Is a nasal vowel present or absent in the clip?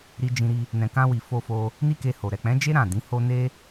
present